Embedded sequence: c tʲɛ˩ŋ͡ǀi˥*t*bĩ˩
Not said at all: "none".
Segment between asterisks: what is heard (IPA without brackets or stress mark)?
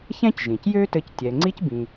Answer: c